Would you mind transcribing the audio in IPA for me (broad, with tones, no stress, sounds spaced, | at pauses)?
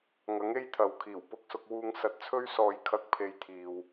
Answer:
ŋ ɐ˨˥ ŋ e˥ j t̪ʰ ɐ˨ w kʰ iː˨˩ w p ʊ˧ k̚ s ʊ˧ k̚ w uː˧ ŋ s ɐ˨ t̚ t͡sʰ ɵ˧ ɥ s ɔː˨ j kʰ ɐ˨˥ k̚ pʰ e˨˧ j t̪ʰ iː˨ w